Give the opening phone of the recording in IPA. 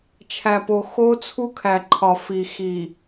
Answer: t͡ʃʰ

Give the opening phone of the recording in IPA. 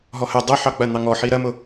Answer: ɦ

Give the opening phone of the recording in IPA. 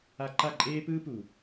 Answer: a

